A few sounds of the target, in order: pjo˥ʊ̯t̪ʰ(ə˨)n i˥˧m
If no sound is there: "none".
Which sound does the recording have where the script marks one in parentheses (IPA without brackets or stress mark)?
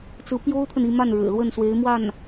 ə˨